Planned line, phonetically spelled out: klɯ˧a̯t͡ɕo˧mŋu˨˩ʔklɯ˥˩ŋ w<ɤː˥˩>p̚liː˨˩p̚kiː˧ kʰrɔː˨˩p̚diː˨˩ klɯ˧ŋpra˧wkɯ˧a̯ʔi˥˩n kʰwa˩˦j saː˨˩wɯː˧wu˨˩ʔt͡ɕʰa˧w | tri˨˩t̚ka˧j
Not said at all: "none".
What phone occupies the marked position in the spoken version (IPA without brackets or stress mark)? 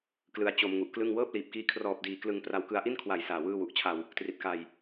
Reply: ɤː˥˩